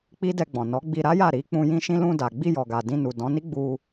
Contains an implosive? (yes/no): no